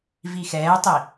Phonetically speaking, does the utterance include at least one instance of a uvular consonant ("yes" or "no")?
no